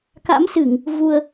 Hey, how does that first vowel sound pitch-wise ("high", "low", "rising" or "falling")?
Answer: rising